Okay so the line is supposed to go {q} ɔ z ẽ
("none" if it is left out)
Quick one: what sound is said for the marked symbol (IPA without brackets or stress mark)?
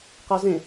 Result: q